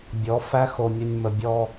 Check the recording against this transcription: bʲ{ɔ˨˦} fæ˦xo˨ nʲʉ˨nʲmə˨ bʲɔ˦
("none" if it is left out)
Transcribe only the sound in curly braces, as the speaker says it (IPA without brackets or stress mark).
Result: ɔ˨˦